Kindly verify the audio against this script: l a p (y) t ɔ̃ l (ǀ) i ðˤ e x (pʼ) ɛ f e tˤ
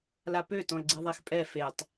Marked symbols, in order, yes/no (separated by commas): no, no, yes